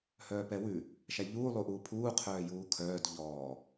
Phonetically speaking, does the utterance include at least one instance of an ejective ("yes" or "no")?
no